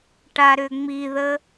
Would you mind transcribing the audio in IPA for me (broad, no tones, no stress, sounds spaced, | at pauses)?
ʈ a ɾ ʏ ŋ͡m i ð ə